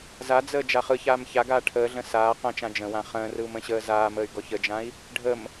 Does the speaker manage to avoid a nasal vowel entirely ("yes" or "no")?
no